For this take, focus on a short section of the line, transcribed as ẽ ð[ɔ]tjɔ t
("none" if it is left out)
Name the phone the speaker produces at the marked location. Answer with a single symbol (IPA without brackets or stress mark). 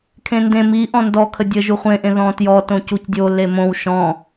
ɔ̃